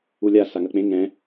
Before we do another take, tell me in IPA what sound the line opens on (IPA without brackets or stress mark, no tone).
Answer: u